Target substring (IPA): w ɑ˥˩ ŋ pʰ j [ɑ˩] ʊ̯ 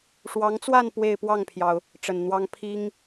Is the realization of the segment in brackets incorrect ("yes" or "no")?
no